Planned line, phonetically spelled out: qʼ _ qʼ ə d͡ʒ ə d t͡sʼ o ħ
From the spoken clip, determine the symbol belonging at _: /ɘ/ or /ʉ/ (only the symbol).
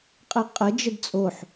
ɘ